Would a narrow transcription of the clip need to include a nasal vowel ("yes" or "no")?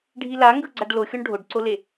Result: no